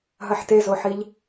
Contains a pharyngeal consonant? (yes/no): yes